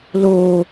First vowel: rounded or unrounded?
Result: rounded